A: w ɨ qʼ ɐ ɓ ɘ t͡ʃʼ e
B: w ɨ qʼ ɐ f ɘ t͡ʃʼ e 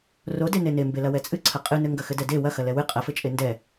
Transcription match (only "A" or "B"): B